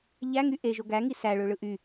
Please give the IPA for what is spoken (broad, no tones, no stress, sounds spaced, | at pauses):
ʎ æ ŋ y ʔ e ʒ o ɡ æ ŋ i s æ ɭ ø ɭ ɯ ʔ y